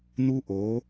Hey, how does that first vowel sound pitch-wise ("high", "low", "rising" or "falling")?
high